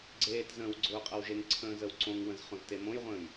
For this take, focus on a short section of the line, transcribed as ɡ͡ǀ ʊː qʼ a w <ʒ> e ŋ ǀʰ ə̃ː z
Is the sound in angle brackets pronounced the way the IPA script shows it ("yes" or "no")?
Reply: yes